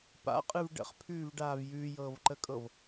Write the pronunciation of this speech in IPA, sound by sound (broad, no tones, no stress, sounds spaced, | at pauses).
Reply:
p a̰ qʼ ɯ v ɖ ə̰ χ pʰ ʉː v ɖ aː v j ʉː j ɤː v ǃ ə kʼ ɤ v